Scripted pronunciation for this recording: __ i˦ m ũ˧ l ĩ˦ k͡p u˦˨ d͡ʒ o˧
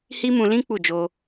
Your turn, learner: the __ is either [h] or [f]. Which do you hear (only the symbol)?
h